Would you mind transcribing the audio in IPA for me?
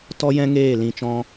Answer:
t ɔ˦ j ɛ̃˦ ŋ eː˦˨ l ĩ˧ t͡ʃ ɔ̃˦

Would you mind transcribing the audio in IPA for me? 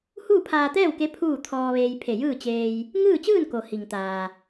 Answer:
h uː˥˨ pʰ aː˧ t̪ ɛː˥˨ w k e˧˥ pʰ uː˥˨ t̪ʰ ɔː˧ ʋ eː˧ j pʰ e˧˩ j ɯː˥˨ t͡ɕ eː˧ j | ŋ ɯː˥˨ t͡ɕ ɯː˥˨ n k o˩ h i˩ ŋ t̪ aː˩

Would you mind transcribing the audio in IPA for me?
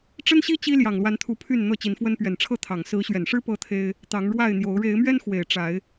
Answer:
ʈ͡ʂ ə˦ n ɕ i˦ t͡ɕ i˦ l j ɑ˨˩ ŋ l w a˨˦ n t̪ʰ u˨˦ pʰ y˥˨ n n̪ ɤ˥˨ t͡ɕ i˨˦ n f w ə˦ n p ɥ ɛ˨˩ n ʈ͡ʂʰ ɤ˥˨ t̪ʰ ɑ˨˩ ŋ s ɹ̩˨˦ ɕ ɥ ɛ˨˩ n ʂ ɻ̩˦ p ɤ˦ t̪ʰ e˦ ɪ̯ | t̪ ɑ˨˦ ŋ ɻ w a˥˨ ɪ̯ n̪ j o˨˦ ʊ̯ ɻ e˨˦ ɪ̯ m ɥ ɛ˦ n x w e˨˩ ɪ̯ ʈ͡ʂ a˨˦ ɪ̯

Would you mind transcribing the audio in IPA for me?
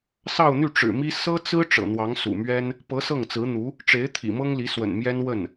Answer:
s ɑ˥˧ ʊ̯ n̪ y˥˩ ʈ͡ʂ ɻ̩˨˩ m i˥ s ɤ˥ t͡s ɹ̩˥ ʈ͡ʂ ɤ̰˨˩ n̪ w ɑ˧˥ ŋ s ṵ˨˩ m ɥ ɛ˥ n | p ɤ˧˥ s ɤ˥˩ ŋ t͡s ɹ̩˧˥ n̪ u˧˥ | ʈ͡ʂ e˧˥ ɪ̯ t̪ʰ ḭ˨˩ m ɤ˥ ŋ l i˧˥ s w ə̰˨˩ n m j ɛ˥ n w ə˥˩ n

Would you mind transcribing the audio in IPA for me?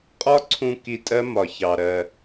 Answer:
qʼ ɒ˦˥ ǀʰ ũ˧ k i˧ tʼ ɜ˦˥ m ɒ˧ ç ɑ˧ ɾ ɜ˧

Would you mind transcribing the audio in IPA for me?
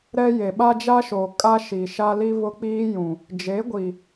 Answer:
ɾ ɛ˦ j e˨ ɓ a˦ d͡ʒ a˦ ʃ oː˨ kʼ a˦ ʃ i˨ ʃ a˦ l i˦ β ʊ˦ k͡p iː˦ j ũ˨ | d͡ʒ e˨˦ ɡʷ i˨

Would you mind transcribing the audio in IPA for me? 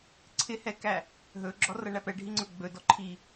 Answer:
ǀʰ ɪ h ɛ k æ | ɦ ɵ ɡ͡ǁ ɔ r ʌ ɳ æ p ɛ ɖʱ i ŋ͡ǀ ɵ ɡ͡b ɵ d ɔ ǃʰ i

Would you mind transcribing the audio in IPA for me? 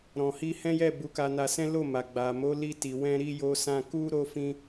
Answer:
ɾ ɔ̃˨ h i˧ h ɛ̃˦ j ɛ˦˨ b u˨˦ k a˧ n a˧ s ɛ̃˦ l o˦˨ m a˨ ɡ͡b a˨ m o˨˦ l i˦ t i˧ w ɛ̃˦ ɾ i˦ j o˧ s ã˧ k u˦ ɾ o˦ f ĩ˦

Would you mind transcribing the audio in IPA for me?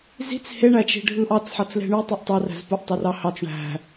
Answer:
z i̤ t͡s h e ɳ æ t͡ʃ i̤ ɖʱ ɯ ʔ ɑ t͡s ħ ɑ t͡s l e̤ ɳ y tˤ y ʔ tˤ ɑ r æ̤ z p u ʔ tˤ o r ɑ h ɑ t͡s ɳ æ̤

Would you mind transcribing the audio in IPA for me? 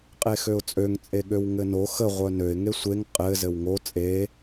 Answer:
qʼ e x ø ʊ̯ t͡sʼ ø ŋ t͡sʼ e ɠ ø w ŋ ɘ n o x ə ʁʷ œ n ø ɪ̯ ŋ e sʷ e ŋ qʼ ɘ z ɘ w ŋ o t͡sʼ e

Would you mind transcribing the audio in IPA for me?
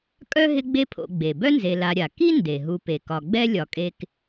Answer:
kʼ œ˥ ɦ ɪ˦ ɡ͡b e˦ pʰ o̰˨ ɡ͡b e˩ b œ˥ n z e˨ l a˨ ɾʲ a˩ k i˥ n d e˩ ɦ u˨ p e˩ k ɒ˨ ɡ͡b ɛ˦ lʲ ɒ˩ kʼ e˨ k

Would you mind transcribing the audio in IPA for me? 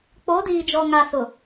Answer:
k͡p o˨˦ d iː˨ d͡ʒ ɔ˨ ŋ a˨ s ʊ˨

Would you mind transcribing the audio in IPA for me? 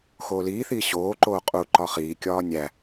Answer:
x oː l iː θ iː ɕ oː ǃ oː qʼ u ǃ ɒ χ iː kʲ ɒː nʲ æ

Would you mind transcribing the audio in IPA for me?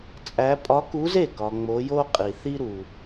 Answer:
t͡sʼ æ˧˥ pʼ ɒ˧˥ k u˧˥ z e˥˩ k ɒ˨ ŋ͡m o˧˥ j o˥ qʼ i˨ θ i˥ ɾ u˨

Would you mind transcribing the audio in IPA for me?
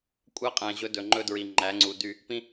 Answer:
kʷʼ æ˦ qʼ æ̃˨ ʑ ɵ˦ d ɵ˨ ŋ͡ǃ ɵ˦ d ɹ i˨ ŋ͡ǃ æ˨˦ ŋ͡ǀ u˨ d y˦˨ | p ĩ˦

